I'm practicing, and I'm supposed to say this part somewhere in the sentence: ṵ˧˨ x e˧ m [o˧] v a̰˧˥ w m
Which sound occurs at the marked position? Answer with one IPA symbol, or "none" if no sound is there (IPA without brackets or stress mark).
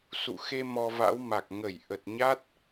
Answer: ɔ˧